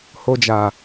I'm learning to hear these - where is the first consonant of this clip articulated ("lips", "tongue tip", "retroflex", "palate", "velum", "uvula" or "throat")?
throat